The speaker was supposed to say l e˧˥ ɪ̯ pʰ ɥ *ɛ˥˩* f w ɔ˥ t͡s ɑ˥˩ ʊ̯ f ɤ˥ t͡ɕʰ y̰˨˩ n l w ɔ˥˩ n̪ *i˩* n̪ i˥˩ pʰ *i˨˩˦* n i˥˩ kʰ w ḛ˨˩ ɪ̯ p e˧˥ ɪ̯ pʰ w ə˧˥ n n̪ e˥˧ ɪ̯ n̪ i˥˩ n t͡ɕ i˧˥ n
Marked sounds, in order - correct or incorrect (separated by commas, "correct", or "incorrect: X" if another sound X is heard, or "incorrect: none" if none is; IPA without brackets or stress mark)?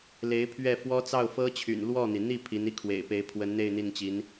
correct, correct, incorrect: i˧˥